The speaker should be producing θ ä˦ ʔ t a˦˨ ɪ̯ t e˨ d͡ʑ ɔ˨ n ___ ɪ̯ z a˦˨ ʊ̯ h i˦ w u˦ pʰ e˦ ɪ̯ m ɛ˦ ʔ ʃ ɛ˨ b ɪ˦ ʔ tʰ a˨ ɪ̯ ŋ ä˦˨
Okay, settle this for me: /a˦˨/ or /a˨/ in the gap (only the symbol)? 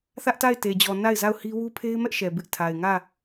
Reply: a˦˨